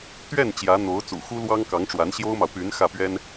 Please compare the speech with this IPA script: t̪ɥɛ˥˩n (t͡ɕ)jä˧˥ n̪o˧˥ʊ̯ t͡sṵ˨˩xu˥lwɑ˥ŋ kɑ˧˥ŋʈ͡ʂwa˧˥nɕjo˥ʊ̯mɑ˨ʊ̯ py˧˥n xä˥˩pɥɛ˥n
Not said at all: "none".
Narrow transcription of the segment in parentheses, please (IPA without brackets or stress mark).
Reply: t͡ɕ